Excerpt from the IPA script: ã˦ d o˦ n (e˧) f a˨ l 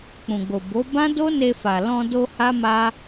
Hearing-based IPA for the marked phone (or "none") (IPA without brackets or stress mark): e˧